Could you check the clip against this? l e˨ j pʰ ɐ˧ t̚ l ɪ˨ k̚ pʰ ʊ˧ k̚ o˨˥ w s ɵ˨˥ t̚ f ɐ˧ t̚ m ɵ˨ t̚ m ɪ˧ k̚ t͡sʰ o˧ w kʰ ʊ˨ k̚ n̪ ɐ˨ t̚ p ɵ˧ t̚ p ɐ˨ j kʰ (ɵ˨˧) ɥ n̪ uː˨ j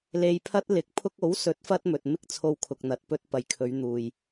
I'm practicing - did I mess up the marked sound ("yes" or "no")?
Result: no